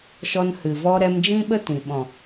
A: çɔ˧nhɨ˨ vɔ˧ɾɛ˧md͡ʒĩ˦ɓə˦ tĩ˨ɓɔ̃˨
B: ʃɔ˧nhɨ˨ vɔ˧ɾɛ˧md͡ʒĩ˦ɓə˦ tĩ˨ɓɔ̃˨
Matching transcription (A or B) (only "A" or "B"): B